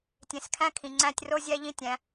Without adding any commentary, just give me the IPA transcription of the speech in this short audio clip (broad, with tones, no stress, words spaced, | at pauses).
tʲẽ˨skʰæ̃˦ kʰĩ˨ŋ͡ǀæ̃˦˨tʲ ro˦zʲæ˦ ʎĩ˦tʲæ̃˨˦